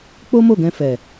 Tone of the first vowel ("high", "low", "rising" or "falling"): high